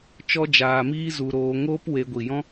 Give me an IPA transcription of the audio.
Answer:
t͡ʃ ɔ˦ d͡ʒ aː˧ m iː˦ z u˧ ɾ oː˧ ŋ oː˦ p w e˧ ɡʷ i˨ j ɔ̃˦

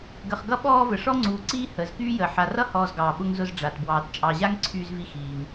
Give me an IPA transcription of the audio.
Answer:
ɡ ə˨ χ ɡ ʌ˦ ɓ ɔː˦ v ə˩ ʂ ɔ˥ ŋ͡ǀ uː˨ ǀ iː˥ h əː˩ z k yː˥ j əː˩ ħ a˨ r ʌ˥ h ɔː˨ z ɡ ɑː˩ ɓ ʊ˦ ŋ z ʊ˦ z ɖ͡ʐ a˩ t b w ɑː˨ t t͡ʃʼ ɑ˨ ʑ a˥ ŋ ǀʰ yː˦ z v i˦ x iː˨ ŋ

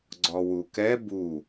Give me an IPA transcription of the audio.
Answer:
ɡ͡ǀ ɔ w u k ɛ b u

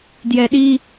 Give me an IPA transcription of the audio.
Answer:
d j ɛ ɗ i

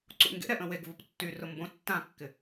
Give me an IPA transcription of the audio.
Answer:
ǀ ṵ ŋ ɡ ḛ ɾ ɛ ʔ ə̃ w e ɡ v ʊ p tː y r ʊ m b õ tː ã kː ɪ

